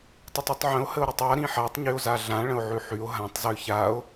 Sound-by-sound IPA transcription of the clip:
tˤ ə tˤ i tˤ ʕ ə̃ o̯ h ə o̯ ɾ y tˤ a ɾ ĩ ħ a tˤ ɲ y o̯ z a ɮ ã ɭ ə̃ o̯ ʕ ʉ ħ y o̯ ɦ ã tˤ z ʉ ç a o̯

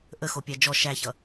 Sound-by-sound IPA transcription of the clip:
ʔ ə x o pʲ æ d͡ʒ ɔ ʃ æ ç ʌ

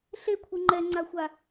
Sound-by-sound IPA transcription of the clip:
ɬ e kʷʰ ɯ ŋ͡ǃ ɛ ŋ͡ǀ a xʷ a

